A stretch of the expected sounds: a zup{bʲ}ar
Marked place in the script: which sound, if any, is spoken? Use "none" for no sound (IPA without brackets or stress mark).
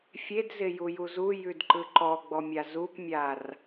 mʲ